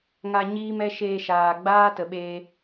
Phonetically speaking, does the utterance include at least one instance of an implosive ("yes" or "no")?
yes